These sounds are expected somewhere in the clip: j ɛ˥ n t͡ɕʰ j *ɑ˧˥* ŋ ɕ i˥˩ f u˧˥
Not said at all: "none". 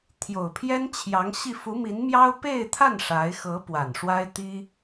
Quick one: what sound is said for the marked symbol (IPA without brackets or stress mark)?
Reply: ɑ˧˥